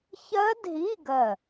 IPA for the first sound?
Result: ç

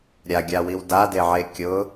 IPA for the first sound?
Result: ɾʲ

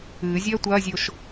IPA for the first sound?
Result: ɨː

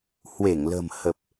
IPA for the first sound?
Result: h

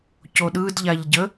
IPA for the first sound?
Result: c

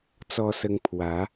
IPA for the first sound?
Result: t͡s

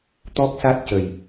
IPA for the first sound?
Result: t̪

